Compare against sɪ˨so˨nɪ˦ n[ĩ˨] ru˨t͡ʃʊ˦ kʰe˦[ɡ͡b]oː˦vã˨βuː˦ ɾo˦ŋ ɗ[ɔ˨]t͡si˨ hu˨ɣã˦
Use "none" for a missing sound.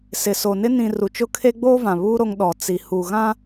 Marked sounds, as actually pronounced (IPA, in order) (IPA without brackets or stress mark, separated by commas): ĩ˨, ɡ͡b, ɔ˨